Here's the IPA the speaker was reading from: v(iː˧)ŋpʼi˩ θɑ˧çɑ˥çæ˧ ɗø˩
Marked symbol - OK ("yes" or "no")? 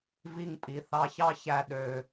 no